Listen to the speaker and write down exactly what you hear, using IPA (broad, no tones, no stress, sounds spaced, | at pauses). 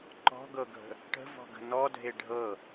ǃ ɔ̤ ɡ ɤ ɡʱ ə̤ | ʈ ə̤ v ɔ̤ ɡ ə̤ n ɔ dʱ e ɖʱ ɤ